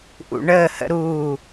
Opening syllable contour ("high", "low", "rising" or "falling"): low